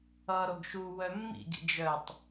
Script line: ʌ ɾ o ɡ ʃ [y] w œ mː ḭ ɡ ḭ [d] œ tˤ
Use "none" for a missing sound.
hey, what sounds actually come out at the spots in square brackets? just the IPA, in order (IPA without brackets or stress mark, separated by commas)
u, d͡ʒ